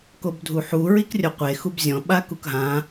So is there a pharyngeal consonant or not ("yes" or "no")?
yes